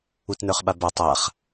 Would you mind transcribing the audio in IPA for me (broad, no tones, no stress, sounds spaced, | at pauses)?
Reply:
u t n ə˞ χ ɓ a b a tˤ a χ